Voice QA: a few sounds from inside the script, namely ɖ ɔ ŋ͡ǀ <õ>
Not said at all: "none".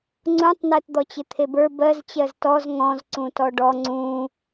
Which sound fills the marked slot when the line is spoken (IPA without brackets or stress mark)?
ũ